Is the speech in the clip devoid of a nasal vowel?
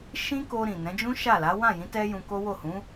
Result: no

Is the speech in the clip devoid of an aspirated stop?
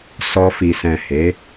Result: yes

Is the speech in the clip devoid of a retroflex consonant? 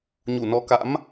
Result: yes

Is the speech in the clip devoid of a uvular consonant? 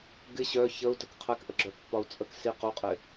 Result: no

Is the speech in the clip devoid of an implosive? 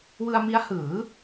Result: yes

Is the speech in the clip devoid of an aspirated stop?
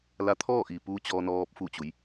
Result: no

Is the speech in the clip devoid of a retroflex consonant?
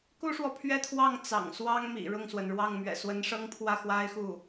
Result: no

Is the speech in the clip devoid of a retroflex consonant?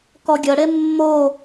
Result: no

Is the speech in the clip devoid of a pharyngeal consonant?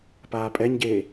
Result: yes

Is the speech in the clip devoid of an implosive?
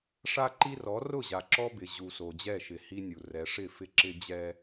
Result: yes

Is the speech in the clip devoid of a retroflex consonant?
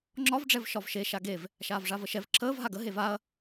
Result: no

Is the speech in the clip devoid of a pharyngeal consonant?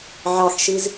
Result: no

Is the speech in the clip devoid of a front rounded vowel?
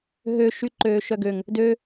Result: no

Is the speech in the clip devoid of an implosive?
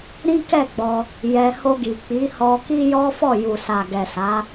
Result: yes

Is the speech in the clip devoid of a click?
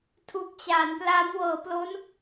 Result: yes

